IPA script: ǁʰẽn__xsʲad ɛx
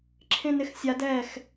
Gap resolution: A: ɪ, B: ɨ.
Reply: A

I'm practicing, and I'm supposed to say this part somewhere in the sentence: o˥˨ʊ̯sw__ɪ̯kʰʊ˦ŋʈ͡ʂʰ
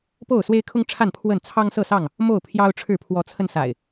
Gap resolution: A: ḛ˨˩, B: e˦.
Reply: B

